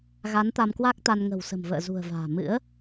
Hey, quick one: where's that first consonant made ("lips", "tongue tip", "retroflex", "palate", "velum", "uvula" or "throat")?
velum